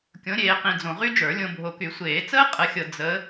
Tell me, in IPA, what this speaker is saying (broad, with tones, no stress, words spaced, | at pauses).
kʲõ˨˦ɾʲeː˨qĩ˨ d͡zõ˨ʁy˥d͡ʒə˞˨˩˦ lʲõ˨bʱo˨ky˨˩˦ sʷeː˨˩˦t͡səː˥ qʼə˨˦xʲɤ˨ d͡zə˨˦